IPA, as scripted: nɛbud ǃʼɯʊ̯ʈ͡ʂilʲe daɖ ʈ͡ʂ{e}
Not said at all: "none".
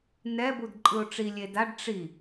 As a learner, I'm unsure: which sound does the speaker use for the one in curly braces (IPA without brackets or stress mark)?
i